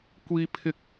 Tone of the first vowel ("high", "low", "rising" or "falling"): high